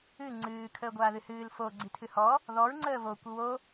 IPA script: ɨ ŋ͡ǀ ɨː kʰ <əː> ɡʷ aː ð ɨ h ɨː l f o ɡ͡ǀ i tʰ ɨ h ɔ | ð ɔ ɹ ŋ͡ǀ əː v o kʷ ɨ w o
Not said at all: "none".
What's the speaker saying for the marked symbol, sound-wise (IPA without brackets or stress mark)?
əː